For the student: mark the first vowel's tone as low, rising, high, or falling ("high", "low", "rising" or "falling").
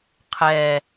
low